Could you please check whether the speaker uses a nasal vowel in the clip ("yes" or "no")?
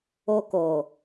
no